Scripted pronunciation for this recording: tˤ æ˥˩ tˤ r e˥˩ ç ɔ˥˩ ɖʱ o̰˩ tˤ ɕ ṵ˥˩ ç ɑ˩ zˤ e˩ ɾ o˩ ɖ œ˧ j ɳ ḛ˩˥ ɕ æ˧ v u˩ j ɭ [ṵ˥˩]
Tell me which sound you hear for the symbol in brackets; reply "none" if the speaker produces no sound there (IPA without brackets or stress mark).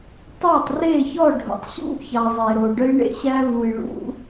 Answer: ṵ˧